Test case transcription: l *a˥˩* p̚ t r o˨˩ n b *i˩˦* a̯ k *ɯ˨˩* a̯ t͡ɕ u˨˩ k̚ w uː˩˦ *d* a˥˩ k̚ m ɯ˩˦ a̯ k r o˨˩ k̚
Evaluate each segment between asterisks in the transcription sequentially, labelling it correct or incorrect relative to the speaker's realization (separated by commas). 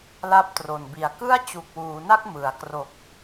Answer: correct, incorrect, incorrect, incorrect